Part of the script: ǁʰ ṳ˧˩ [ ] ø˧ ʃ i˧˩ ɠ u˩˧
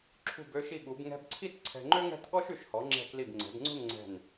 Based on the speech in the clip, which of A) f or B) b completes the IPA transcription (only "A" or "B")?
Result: B